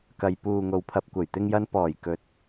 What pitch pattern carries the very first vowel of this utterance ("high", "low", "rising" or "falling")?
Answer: low